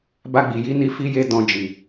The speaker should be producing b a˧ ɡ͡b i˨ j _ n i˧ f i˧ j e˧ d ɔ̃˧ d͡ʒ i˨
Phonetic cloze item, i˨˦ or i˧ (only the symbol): i˨˦